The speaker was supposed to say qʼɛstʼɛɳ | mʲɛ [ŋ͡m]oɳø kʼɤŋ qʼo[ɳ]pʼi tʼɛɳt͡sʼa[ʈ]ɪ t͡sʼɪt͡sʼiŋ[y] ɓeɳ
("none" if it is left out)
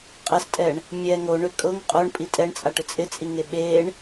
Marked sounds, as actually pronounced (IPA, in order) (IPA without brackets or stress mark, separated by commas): ŋ, ɳ, ʈ, e